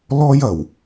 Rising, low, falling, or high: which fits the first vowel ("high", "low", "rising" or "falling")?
high